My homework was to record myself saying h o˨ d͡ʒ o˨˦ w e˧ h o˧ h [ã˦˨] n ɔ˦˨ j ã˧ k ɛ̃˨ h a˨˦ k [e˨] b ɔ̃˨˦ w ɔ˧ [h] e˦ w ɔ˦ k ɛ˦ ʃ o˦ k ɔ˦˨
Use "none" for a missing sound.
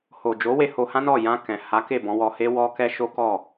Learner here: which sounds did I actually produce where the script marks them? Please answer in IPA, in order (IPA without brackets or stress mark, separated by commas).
ã˦, e˦˨, h